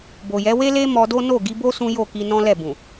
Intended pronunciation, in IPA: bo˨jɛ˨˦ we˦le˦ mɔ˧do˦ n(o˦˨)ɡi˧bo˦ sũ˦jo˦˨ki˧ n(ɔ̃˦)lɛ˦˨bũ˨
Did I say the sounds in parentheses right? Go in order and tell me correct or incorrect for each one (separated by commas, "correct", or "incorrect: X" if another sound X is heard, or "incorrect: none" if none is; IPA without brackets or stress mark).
correct, correct